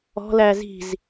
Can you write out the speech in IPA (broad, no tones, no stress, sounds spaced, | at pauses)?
ɔ̤ l æ z i̤ z